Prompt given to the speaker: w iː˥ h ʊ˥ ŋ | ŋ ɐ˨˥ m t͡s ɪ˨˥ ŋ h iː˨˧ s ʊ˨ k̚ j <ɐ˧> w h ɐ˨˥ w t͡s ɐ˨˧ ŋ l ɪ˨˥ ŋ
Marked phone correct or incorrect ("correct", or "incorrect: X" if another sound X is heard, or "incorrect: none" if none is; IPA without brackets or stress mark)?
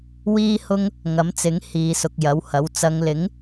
incorrect: ɐ˨˥